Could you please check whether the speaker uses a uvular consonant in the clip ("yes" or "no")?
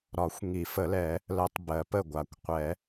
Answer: yes